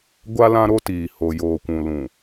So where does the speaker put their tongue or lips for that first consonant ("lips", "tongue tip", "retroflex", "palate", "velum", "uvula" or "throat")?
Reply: velum